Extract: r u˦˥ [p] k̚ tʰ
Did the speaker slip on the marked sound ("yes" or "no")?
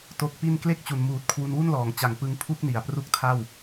yes